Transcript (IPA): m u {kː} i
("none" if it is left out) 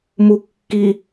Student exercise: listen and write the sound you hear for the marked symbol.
kː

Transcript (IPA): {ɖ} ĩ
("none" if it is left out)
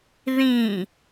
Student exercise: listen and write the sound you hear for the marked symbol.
ð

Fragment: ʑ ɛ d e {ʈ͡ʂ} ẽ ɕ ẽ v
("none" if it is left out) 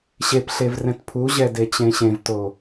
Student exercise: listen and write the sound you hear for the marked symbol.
t͡ɕ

